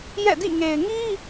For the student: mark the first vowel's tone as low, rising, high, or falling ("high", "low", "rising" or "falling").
falling